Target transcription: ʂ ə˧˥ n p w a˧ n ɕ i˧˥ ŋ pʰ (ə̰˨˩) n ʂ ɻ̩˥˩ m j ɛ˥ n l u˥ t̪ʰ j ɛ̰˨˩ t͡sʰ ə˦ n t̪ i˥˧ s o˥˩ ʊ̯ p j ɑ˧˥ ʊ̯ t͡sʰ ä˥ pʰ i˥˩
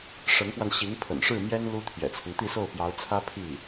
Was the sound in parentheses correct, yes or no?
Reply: yes